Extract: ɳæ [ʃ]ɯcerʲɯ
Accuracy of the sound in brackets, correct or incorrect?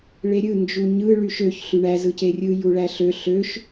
incorrect